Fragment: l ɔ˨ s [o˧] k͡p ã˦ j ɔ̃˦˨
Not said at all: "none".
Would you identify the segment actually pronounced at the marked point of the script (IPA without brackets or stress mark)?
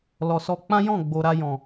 ɔ˧